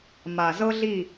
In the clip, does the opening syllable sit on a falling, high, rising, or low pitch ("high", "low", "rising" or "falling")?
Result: low